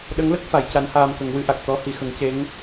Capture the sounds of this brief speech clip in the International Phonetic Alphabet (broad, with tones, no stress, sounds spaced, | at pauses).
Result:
ɗ ə˧˥ ŋ l ə˦˥ k̚ f a˨˩˦ j c a˧˥ n h aː˧ m k ə˨˩˦ ŋ w ɨ˨˩˦ ʔ a˨˩ k̚ t̪ ɔ˧˥ h i˨˩˨ x ə˨˩˦ ŋ c e˧˥ ŋ